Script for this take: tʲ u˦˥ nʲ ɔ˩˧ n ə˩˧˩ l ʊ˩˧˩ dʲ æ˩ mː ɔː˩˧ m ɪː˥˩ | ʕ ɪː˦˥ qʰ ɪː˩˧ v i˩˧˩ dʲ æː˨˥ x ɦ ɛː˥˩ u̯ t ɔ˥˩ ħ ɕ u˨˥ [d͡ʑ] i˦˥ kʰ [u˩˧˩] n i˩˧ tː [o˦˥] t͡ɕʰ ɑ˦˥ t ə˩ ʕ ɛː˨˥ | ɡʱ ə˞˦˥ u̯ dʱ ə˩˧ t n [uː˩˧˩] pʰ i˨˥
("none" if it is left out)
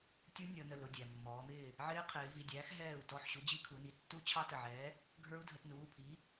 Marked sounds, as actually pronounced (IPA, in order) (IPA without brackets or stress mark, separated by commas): d͡ʑ, u˩˧, u˦˥, uː˩˧˩